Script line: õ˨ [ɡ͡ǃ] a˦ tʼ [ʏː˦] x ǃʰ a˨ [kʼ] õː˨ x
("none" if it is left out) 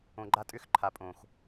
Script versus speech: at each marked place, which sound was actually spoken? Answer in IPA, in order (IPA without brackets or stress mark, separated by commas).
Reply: ɡ͡ǃ, ʏː˦, pʼ